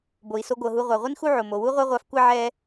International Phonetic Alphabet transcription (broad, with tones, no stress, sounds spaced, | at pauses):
b o˨ i̯ s o˦ ɡʷ ɤ˨ ɦ u˦ ʁʷ a˨ ʁʷ i˥ n x u˥ ʕ o˨ m o˨ w u˥ ʁʷ a˥ ʁʷ a˦ f kʷ ɛ˥ ʕ ɛ˥